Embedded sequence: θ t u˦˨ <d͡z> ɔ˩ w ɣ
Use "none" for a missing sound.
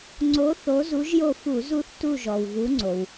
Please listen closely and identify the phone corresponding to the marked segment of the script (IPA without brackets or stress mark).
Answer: ʒ